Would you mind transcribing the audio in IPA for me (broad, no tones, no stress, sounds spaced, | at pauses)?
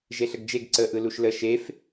ʒ e ɬ ə ɡ d͡ʒ e ɡ ǀ ə ʔ ɯ l u ʃ l ə ʃ e f